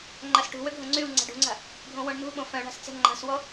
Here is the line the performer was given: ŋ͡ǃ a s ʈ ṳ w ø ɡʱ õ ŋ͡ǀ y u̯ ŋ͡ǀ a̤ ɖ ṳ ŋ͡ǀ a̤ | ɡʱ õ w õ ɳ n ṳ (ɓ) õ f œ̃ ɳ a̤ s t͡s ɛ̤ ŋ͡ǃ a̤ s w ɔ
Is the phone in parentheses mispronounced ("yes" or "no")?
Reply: no